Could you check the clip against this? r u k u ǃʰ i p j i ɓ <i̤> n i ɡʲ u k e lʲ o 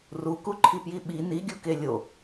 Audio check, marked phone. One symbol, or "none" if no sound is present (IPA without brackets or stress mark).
i